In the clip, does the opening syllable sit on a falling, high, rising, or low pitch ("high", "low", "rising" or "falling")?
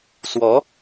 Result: rising